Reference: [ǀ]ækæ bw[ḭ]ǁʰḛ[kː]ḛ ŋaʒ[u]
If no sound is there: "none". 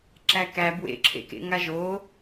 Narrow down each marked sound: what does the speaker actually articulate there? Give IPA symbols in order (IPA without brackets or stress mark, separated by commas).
ǁ, ḛ, k, o